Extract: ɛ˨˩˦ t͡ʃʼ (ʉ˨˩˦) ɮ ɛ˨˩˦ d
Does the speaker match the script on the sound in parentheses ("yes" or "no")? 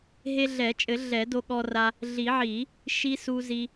no